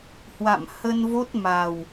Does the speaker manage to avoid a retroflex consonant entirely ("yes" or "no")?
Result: yes